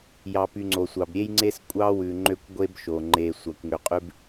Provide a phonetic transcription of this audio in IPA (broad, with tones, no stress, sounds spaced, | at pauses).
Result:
j ɑ˨ p y˨ ŋ͡ǀ o˨ sʷ ɑ˨ b ɾʲ e˦ j ŋ͡ǀ e˦ s kʷʼ ɑ˦ w ʉ˨ ŋ͡ǃ ø˦ kʷ ɡʷ e˦ b ʃ o˨ ŋ͡ǃ e˨ sʷ ɑ˨ kʷ ŋ ø˨ qʼ ʉ˦ b